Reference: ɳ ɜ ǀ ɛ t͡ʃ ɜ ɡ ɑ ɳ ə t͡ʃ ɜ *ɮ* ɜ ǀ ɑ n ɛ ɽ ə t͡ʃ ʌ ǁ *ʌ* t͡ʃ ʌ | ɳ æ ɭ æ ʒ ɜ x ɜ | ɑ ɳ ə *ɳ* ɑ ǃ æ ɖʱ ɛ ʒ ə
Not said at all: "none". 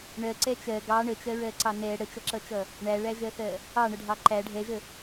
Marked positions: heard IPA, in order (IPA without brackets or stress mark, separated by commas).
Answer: ɹ, ʌ, ɖʱ